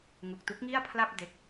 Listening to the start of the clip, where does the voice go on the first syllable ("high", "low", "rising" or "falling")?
low